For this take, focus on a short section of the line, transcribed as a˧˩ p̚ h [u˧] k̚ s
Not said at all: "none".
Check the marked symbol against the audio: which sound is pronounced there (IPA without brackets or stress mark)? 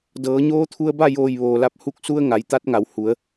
u˧